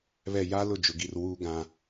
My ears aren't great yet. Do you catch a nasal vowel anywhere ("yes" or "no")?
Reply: yes